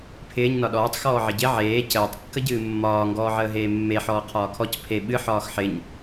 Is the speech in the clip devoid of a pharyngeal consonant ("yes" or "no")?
no